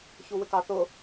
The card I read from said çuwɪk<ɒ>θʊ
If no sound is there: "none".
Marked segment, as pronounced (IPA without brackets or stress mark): ɑ